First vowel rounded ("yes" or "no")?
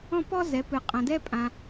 yes